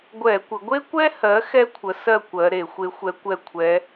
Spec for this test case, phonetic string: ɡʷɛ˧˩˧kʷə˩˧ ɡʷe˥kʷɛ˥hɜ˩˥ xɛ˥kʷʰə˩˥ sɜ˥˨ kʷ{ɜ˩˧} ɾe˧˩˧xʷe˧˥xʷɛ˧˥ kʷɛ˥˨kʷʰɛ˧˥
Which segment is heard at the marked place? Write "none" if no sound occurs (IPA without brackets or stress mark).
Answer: ɜ˩˧